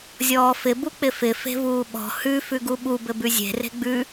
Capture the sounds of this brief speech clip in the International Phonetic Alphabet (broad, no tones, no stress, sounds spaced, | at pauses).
zʲ ɔː f ɪ b u k͡p ɪ f ɪ f e̤ v uː ɓ ɔ̤ h ʉ f ʉ ɡ u ɓ u b ɘ b ʉ zʲ e̤ r e̤ ɡ͡b ʉ